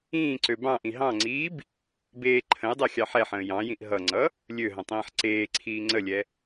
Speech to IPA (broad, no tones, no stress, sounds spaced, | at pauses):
ĩː ǀ ø b ɑ̃ ʔ ĩ ɦ ɑ̃ ŋ͡ǀ iː b | b eː ǃʰ ə̃ j dˤ e xʲ ɑ ħ ɛ ħ ə̃ː j ɑ̃ j ĩ ʔ ɦ ʌ ŋ͡ǀ ʌ | lʲ ø ɦ ə̃ tˤ ĩː ħ ǀ eː ǀʰ iː ŋ͡ǀ ə lʲ ɛ